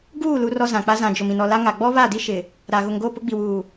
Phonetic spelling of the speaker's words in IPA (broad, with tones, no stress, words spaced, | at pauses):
ɡuː˦˨ lu˦rɔ˦zã˨k͡pa˦ zã˨ d͡ʒʊ˨m ĩ˨nɔ˨la˦ŋa˨ ɡ͡bɔ˦βa˦˨di˦ ʃɪ˨ | ɾa˨ ɣʊ˨ŋɡo˦˨ pʊ˦ɡ͡bi˨wuː˨